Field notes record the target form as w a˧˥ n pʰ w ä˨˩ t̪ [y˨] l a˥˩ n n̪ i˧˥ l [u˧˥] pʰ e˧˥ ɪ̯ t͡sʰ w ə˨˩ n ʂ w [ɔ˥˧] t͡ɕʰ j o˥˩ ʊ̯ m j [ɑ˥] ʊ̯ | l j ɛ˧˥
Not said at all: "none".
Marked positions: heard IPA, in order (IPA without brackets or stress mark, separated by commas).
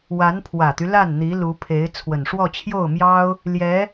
y˦, u˧˥, ɔ˥˧, ɑ˥